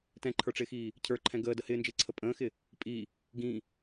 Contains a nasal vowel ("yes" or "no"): yes